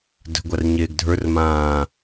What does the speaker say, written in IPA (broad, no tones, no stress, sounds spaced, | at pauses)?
d ə̤ ɡʷ a r ɲ eː ɡ dʱ ə˞ r m ãː